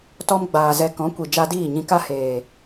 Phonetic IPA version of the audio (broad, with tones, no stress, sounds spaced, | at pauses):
t ɔ˧ m ɡ͡b aː˨ z ɛ˧ k ɔ̃˨˦ kʷ i˨ d͡ʒ a˧ d iː˦˨ ɲ ĩ˧ k a˦ h eː˨